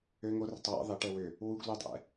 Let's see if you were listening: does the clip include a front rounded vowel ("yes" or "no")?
yes